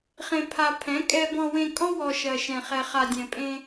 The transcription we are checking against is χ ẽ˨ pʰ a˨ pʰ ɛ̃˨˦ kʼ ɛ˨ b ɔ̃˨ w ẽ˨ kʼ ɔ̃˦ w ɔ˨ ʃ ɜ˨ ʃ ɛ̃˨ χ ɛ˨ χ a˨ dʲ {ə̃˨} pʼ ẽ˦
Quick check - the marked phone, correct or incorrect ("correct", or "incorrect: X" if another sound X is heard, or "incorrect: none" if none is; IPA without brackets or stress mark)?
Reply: incorrect: ɛ̃˨